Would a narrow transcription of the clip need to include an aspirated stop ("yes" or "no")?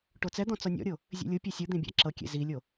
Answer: no